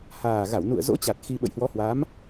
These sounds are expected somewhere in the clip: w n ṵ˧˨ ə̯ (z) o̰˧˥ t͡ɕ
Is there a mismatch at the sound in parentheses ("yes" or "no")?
no